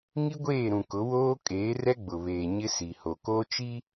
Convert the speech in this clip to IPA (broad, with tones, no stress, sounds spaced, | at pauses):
ŋ i˦ ɡʷ eː˦˨ ɾ ũ˨ k ʊ˨˦ w oː˦ kʼ eː˨˦ r ɛ˦ ɡ͡b ʊ˨ β eː˨ ɲ ɪ˦ s i˨ h o˨ k oː˦ t͡ʃ i˦